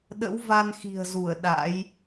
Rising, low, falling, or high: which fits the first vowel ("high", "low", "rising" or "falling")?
rising